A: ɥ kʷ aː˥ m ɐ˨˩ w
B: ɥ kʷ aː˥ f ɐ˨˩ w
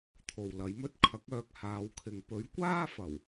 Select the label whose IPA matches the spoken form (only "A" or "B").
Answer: B